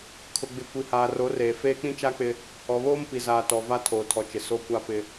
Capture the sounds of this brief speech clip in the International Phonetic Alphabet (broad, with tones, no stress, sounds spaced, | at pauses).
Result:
kʰ ʊ˨ ɡ͡b ɪ˨ kʷ i˨ h aː˨ r o˨˦ r eː˨ f eː˦ k͡p ĩ˦ t͡ʃ a˦ k͡p ɪ˦ | ɔ˨ β oː˦ m p i˨ z aː˨ t ɔ˨ v a˦ tʰ oː˨ tʰ ɔ˨ t͡ʃ ɪ˨ s o˦ kʷ a˦ p ɪ˦